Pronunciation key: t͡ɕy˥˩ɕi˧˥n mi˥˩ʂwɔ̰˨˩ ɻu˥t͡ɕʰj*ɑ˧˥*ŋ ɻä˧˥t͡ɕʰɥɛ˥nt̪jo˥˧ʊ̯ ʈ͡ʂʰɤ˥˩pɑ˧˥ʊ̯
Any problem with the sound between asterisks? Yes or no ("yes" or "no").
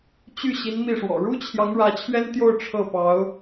no